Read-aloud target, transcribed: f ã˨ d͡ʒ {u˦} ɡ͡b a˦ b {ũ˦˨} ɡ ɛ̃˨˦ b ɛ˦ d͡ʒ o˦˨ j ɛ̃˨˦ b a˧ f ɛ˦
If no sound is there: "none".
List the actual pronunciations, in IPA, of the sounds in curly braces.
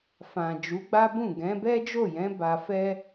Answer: u˨˦, ũ˦˨

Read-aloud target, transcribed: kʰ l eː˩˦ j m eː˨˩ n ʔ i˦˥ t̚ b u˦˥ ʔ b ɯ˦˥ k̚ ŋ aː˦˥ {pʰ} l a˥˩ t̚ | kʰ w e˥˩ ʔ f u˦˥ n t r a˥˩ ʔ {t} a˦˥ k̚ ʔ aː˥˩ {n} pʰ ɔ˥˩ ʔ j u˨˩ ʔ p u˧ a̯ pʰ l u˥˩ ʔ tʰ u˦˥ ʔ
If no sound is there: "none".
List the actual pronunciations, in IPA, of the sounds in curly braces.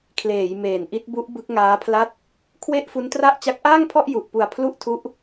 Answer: pʰ, t͡ɕ, ŋ

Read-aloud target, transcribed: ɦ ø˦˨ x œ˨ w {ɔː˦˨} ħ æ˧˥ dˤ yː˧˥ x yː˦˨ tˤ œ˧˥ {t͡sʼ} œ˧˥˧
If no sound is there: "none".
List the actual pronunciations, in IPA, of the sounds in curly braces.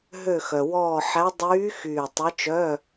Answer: ɔː˦˨, t͡ʃ

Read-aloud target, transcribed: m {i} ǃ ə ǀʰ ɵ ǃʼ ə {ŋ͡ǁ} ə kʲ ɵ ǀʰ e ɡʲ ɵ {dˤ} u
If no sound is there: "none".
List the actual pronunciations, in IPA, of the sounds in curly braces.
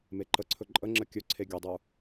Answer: e, ŋ͡ǁ, dˤ

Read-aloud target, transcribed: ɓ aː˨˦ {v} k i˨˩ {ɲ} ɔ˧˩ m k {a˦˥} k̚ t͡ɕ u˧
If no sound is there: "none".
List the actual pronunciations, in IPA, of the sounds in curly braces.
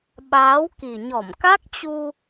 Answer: w, ɲ, a˦˥

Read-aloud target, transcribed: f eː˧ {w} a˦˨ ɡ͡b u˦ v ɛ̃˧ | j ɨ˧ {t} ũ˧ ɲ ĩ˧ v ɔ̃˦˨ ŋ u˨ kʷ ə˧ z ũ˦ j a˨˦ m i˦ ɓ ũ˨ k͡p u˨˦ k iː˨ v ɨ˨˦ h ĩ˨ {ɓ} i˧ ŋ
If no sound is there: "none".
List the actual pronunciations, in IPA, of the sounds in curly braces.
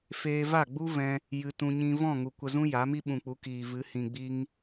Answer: v, t, ɡ͡b

